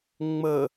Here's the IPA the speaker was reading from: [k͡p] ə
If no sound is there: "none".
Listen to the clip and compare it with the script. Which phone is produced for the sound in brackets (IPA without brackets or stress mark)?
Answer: ŋ͡m